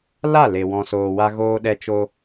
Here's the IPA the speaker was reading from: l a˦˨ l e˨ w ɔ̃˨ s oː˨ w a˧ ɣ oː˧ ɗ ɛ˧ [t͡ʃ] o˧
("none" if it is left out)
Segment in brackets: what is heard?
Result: t͡ʃ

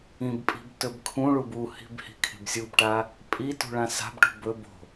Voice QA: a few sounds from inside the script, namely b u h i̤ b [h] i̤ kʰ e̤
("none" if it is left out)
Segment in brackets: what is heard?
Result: h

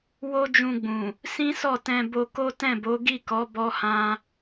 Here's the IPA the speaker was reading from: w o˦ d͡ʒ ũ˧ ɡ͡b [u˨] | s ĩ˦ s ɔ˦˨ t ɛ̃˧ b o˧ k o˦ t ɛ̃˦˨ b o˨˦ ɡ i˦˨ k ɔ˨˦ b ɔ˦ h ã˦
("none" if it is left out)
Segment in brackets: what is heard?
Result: ũ˨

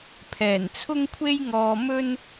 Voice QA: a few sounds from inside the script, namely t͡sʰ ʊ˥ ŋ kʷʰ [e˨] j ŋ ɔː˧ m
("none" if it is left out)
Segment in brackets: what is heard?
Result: e˥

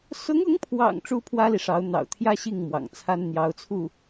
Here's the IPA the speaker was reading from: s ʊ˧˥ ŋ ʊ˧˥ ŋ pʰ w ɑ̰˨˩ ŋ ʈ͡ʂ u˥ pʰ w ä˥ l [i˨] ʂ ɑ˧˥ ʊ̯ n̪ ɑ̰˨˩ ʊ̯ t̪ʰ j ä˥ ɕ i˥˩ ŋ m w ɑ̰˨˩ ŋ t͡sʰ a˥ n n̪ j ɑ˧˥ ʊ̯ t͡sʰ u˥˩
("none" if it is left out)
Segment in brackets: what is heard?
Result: i˨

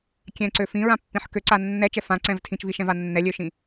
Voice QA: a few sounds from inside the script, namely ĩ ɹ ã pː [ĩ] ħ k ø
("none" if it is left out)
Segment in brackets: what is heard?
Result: ĩ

